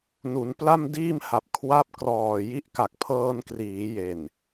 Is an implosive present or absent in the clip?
absent